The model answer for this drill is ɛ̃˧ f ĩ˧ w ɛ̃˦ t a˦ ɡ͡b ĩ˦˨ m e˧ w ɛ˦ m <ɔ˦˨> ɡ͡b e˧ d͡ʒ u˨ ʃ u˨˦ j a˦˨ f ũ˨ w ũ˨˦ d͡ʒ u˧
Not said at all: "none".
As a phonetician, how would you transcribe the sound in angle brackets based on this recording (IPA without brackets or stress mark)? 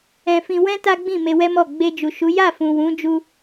ɔ˦˨